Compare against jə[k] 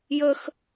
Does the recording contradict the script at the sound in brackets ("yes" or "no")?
yes